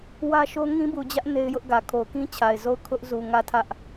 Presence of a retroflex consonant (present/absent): absent